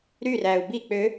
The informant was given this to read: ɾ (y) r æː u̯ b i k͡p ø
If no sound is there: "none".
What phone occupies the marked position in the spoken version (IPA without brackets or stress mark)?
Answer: y